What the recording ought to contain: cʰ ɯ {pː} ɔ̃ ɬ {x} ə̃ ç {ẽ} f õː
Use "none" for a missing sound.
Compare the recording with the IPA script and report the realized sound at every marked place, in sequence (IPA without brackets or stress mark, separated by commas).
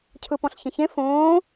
p, ç, ẽ